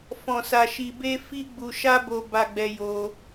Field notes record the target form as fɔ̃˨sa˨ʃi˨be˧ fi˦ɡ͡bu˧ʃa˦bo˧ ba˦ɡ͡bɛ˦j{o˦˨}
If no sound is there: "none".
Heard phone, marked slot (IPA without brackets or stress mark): o˦